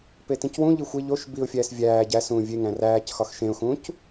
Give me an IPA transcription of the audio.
p e t ĩ c w ũ ʎ i xʷ e ʎ o ʃ b i ʊ̯ fʲ æː s vʲ æː ɟ æ s ũː vʲ e ŋ æ̃ r æː c x ɒ x ʃ ẽ ʊ̯ x ũː c

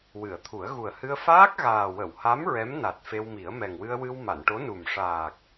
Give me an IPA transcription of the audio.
w ɨ˨˩˨ ə̯ t̪ʰ u˨˩˦ ə̯ ɣ u˨˩ ə̯ h ɨ˧ ə̯ f aː˦˥ k̚ ɣ aː˨˩ w ə˨˩˨ w h a˧˥ m ɹ ɛ˧˥ m n a˨˩ t̚ f e˧ w m i˨˩˦ ə̯ m ɛ˨˩ ŋ w ɨ˧ ə̯ w ɨ˧ w m a˨˩˨ n ʈ o˧˥ n u˨˩ m ʂ aː˨˩ k̚

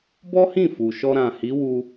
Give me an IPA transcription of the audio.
b ɔ˦ h ĩ˦˨ f u˨ ʃ ɔ˧ ɾ ã˨ h i˨˦ w u˦

